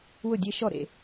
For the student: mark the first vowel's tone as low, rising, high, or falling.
falling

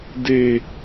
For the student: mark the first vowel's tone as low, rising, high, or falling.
low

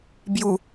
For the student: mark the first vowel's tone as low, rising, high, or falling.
low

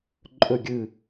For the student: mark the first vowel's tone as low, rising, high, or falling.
falling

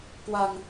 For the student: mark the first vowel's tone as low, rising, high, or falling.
low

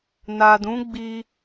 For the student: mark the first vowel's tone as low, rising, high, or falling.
low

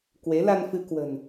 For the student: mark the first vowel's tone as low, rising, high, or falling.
rising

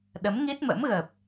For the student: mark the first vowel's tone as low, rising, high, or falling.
rising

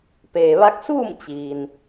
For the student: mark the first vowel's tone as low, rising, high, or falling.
low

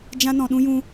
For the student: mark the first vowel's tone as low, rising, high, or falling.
high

